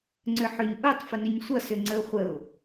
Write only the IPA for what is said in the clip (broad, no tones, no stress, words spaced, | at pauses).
ŋ͡ǀʏħʏɲ ʔutˤ fənʏɲsʷʌ sʏŋ͡ǀəʊ̯χʷəʊ̯